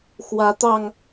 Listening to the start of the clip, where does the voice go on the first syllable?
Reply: rising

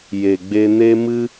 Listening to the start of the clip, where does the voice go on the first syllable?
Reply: low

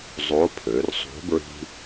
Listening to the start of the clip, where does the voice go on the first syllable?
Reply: rising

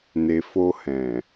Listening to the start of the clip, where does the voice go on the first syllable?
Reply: low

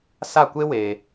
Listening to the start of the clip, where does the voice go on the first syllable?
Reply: falling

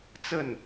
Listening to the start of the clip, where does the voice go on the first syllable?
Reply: falling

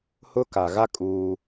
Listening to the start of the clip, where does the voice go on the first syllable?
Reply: high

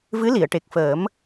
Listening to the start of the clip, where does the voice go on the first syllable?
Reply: rising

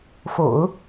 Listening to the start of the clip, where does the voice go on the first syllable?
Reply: low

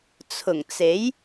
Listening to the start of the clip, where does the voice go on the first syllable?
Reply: low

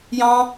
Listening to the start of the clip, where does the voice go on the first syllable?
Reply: high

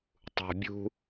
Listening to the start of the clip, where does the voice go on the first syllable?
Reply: low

